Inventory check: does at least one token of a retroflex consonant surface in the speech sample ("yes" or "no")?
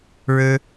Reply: yes